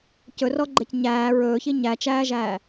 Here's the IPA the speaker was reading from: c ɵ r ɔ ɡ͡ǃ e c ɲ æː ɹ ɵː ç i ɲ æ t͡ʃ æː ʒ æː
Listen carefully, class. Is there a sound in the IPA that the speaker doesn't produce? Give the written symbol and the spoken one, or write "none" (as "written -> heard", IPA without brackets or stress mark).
none